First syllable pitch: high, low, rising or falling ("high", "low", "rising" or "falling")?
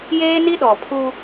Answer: high